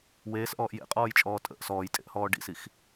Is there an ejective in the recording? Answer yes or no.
yes